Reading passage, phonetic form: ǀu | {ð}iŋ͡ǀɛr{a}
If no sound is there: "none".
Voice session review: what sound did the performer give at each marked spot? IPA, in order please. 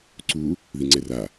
ð, a

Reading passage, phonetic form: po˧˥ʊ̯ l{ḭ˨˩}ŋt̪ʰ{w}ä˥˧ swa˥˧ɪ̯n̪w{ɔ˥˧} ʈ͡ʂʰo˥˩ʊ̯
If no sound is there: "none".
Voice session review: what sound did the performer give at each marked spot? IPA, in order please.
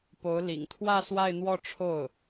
ḭ˨˩, w, ɔ˥˧

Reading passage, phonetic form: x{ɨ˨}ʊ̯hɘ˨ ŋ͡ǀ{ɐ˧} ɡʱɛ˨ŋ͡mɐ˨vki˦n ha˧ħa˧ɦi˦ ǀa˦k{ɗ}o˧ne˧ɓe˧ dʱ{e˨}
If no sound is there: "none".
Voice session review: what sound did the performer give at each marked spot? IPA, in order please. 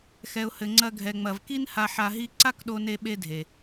ɛ˨, ɐ˧, ɗ, e˨

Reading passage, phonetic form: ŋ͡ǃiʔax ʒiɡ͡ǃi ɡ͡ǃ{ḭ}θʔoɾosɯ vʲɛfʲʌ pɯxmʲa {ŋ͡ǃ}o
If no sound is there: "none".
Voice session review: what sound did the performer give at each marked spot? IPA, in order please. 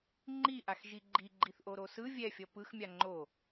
i, ŋ͡ǃ

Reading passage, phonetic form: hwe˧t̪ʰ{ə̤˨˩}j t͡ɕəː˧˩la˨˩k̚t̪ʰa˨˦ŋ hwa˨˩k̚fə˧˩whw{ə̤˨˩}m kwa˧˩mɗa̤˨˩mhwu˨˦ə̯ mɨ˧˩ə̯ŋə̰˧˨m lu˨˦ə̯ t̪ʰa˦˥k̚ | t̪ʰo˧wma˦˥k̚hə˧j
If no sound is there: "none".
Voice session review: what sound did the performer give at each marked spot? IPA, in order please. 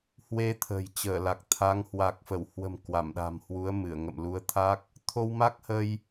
ə̤˨˩, ə̤˨˩

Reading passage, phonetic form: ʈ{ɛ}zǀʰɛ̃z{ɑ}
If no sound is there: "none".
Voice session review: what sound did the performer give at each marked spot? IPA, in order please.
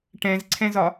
ɛ̃, ɒ

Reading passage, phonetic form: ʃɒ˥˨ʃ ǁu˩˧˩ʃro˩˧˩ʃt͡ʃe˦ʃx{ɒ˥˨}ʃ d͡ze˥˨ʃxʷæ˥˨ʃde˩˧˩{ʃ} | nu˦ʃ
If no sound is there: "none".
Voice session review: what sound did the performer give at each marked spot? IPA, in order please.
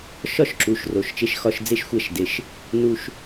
ɒ˥˨, ʃ

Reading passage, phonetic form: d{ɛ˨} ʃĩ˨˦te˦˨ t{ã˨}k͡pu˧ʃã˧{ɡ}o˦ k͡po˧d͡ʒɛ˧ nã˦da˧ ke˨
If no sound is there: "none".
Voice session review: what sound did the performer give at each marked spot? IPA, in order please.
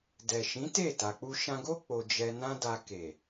ɛ˨, a˨, ɡ

